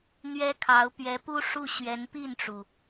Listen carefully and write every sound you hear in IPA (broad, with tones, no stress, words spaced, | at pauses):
n̪ɥɛ˥kʰɑ˧˥ʊ̯ pɥɛ˧˥pu˥ʂu˥˩ɕɥɛ˧˥n pi˥˩nʈ͡ʂu˩